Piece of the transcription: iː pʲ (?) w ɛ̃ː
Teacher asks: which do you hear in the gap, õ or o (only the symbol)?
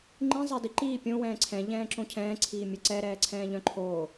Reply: õ